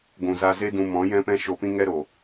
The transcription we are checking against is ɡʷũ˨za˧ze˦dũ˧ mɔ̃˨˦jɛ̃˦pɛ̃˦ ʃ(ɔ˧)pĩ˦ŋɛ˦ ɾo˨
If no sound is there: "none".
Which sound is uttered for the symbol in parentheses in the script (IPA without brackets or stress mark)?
o˧